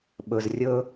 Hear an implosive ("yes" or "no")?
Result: yes